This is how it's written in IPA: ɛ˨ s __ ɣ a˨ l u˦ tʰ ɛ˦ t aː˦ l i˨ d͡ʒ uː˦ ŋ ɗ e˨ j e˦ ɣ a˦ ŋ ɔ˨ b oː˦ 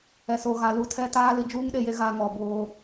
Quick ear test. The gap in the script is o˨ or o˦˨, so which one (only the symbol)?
o˨